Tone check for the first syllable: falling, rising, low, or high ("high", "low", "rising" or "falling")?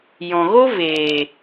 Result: low